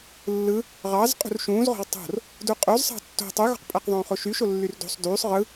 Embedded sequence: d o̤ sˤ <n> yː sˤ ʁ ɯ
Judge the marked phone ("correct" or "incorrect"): incorrect